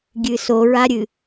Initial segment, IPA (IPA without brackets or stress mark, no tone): ɡʲ